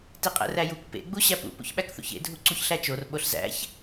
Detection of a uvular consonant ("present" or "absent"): present